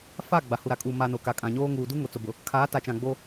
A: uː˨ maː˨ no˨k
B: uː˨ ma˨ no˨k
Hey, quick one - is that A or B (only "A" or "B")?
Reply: B